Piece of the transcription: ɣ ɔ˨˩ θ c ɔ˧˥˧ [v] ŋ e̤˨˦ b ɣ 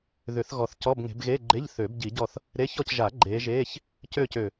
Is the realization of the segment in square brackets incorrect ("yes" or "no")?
yes